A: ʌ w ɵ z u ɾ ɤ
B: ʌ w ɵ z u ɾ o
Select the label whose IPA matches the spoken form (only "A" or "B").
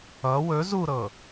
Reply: A